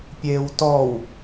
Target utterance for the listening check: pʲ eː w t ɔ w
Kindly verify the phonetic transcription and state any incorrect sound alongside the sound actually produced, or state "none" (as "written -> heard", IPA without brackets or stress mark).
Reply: none